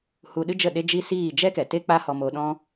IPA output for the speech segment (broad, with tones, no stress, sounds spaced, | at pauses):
h u˧ ɗ ɨ˦ d͡ʒ ə˦˨ ɗ e˦ d͡ʒ i˦ s iː˦˨ d͡ʒ ɛ˦ k ɛ˨ t e˦ k͡p a˦ h ɔ˧ m o˧ ɗ ɔ̃˦